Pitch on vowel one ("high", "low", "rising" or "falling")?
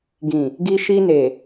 low